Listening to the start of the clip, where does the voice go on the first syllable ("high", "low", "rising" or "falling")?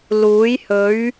rising